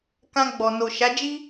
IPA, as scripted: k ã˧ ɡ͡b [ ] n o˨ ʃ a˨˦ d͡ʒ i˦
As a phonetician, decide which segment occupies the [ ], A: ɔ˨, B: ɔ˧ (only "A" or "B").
A